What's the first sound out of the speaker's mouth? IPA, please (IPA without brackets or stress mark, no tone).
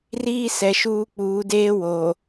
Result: r